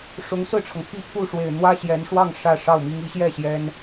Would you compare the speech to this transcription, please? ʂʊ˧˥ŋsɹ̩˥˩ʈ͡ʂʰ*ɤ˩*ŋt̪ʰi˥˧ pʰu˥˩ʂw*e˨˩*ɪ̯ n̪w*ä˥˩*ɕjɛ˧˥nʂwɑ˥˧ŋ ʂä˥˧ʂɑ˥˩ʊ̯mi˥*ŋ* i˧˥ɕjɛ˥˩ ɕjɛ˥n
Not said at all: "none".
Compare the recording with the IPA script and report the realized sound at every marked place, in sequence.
ɤ˩, e˨˩, ä˥, ŋ

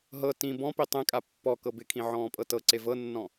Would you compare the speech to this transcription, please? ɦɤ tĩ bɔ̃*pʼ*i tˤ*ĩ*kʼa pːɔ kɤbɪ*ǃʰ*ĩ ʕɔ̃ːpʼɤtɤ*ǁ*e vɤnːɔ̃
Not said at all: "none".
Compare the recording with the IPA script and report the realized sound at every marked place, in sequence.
p, ẽ, kʰ, ǀ

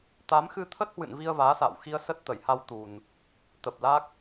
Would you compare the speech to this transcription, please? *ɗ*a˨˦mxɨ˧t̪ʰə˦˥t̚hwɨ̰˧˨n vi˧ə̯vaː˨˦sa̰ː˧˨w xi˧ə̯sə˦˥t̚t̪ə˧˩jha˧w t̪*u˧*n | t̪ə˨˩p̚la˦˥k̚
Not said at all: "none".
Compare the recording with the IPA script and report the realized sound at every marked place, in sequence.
t̪, u˨˩

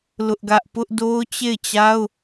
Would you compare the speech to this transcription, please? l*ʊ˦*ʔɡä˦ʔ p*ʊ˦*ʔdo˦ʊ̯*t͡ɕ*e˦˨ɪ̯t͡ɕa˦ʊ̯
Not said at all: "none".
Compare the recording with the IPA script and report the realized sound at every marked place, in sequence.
ʊ˦, ʊ˦, t͡ɕ

